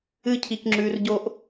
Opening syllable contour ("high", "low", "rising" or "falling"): high